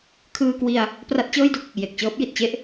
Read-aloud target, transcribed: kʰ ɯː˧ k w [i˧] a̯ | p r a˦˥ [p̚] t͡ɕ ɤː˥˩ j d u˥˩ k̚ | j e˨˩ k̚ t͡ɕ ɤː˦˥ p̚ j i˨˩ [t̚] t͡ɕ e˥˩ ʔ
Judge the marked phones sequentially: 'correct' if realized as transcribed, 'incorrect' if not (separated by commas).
correct, incorrect, correct